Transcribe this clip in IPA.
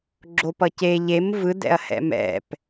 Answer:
ɡ͡ǁ o p ʌ c e ʎ e m v ɯ d ɛ̰ ɐ̯ h ɛ̰ m ɛ̰ p

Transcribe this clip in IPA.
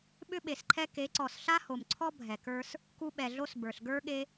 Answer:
ɓ ʏ˦ ɓ e˨ s ǃʰ ɛ˦ k e˨˦ ǀ ɔ˨ s ɬ a˦ h o˨ m ǀʰ ɔ˦ bʱ ɛ˨ k ə˞˦ s | k u˧ ɓ ɛ˨ ɮ o˧ s b ə˞˨ ɬ ɡ ə˞˦ ɠ e˦

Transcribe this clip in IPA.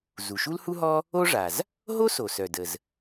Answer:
z u˩ ʃ u˥ l h u˥ ɦ ɔ˥ | o˥ ʐ a˩ z | ɦ o˥ s o˩ s œ˩ d ə˩ z

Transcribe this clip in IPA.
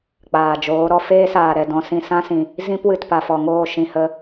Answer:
k͡p aː˨ d͡ʒ oː˨˦ ɾ ɔ˧ f eː˦ s aː˨ ɾ ɛ˨ d ɔ̃˧ s ĩ˧ s ã˦ s ĩ˨ | z ĩ˦ p w ɨ˨ t p a˨ f ɔ˨ ŋ oː˦˨ ʃ ĩ˧ h ə˧

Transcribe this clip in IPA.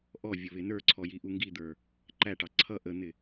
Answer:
ʔ ɔ vʲ ʊ β ɪ n ə˞ ǀʰ ɔ j i ʔ u ŋ ɡ i d̪ ə˞ | ǃ æ ʈ ɑ ǀʰ ʌ ʔ ə n̪ ɪ

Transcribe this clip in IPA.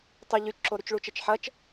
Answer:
tˤ ʊ ʎ y t͡ʃ ǁ o ɾ y t͡ʃ ɭ u t͡ʃ ɐ t͡ʃ ħ ɐ t͡ʃ

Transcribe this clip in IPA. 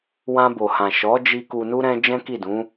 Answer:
w ã˧ b o˨ h ã˨ ʃ ɔ˨˦ d͡ʒ i˧ k u˧ n u˦ ɾ ɛ̃˦ d͡ʒ ɛ̃˦ k i˦˨ d ũ˨˦

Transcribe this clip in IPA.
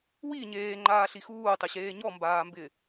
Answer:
w i ɲ eː ŋ͡ǃ aː ɬ i x uː tˤ ɪ ɕ eː ɲ ɔ m b aː m b ɪ

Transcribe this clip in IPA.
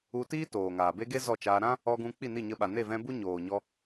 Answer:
u˧ t iː˦ t oː˨ ŋ aː˨ b e˦ ɡ e˦ z ɔ˦˨ t͡ʃ aː˧ ɾ ã˦ | ɔ˧ ɡ ũ˧ k͡p i˦˨ n i˦˨ ɲ ə˧ ɓ a˨ n e˦˨ v ɛ̃˧ b u˦ ɲ oː˨ ɲ ɔ˧

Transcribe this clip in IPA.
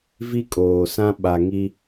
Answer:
v i˦ kʼ oː˨ s ã˦ ɓ a˨ ŋ i˦

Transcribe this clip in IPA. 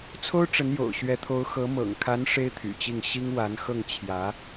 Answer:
t͡sʰ o˥ ʊ̯ ʈ͡ʂ ə˧˥ n j o̰˨˩ ʊ̯ ɕ ɥ ɛ˧˥ t̪ʰ o˧˥ ʊ̯ x ɤ˧˥ m ɤ̰˨˩ ŋ kʰ a˧˥ n ʂ e˥ ɪ̯ t̪ʰ y̰˨˩ t͡ɕ i˥˩ ŋ ɕ i˥ ŋ w a˧˥ n x ɤ˥˩ ŋ t͡ɕʰ j ä˧˥

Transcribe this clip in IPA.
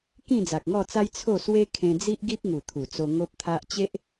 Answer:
k ĩ˥˧ d͡z a˨ k̚ ŋ ɔ˥˧ t͡s a˦ j t͡sʰ o˥˧ s w e˦ kʰ ẽ˧ d͡z i˦ ʔ ɡ i˦ p̚ ŋ u˨˩ t̪ʰ u˨˩ t͡s o˧ ŋ o˦ p̚ t̪ʰ a˦ ʔ t͡ɕ e˦ ʔ

